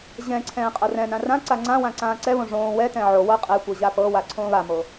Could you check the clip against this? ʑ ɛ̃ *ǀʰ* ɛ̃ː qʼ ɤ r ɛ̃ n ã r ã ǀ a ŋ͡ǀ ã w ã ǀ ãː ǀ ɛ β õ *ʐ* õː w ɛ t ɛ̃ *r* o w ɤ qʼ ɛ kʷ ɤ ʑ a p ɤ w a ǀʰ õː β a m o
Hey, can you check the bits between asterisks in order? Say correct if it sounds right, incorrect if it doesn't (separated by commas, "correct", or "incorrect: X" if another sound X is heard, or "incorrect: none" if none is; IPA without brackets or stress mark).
correct, correct, incorrect: ʕ